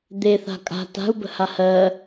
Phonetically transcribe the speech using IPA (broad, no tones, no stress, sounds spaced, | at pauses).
d̪ e θ a̤ kʼ a̤ t a̤ u̯ b ə̤ h a h ɜ